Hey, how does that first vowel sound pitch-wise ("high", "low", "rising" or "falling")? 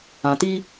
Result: low